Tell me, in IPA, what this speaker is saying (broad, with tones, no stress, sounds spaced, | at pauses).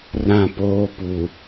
r ã˦˨ p oː˦ p u˨